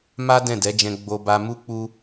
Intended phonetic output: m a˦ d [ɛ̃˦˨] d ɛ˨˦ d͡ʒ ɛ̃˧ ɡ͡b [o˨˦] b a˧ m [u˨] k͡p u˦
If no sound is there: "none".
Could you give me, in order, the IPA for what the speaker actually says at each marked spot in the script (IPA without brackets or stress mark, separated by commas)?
ɛ̃˦˨, o˧, u˦